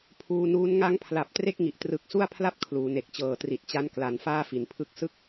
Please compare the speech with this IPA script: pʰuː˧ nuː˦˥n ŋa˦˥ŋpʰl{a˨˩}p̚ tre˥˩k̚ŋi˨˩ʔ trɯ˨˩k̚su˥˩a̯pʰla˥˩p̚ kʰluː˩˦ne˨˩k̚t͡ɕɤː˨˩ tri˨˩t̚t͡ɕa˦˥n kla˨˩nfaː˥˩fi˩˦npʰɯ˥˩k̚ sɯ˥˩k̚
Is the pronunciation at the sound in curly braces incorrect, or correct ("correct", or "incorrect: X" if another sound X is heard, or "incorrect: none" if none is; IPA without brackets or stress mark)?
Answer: correct